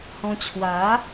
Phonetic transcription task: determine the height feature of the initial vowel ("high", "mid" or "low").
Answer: mid